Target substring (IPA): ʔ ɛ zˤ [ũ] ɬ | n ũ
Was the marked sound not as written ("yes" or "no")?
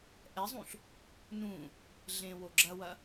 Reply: no